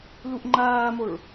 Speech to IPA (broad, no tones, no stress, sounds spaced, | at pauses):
l u ʔ ŋ͡ǃ aː m o ɭ